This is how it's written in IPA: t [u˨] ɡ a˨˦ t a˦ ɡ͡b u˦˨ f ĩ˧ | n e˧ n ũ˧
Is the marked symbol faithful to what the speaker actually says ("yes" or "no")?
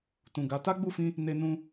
no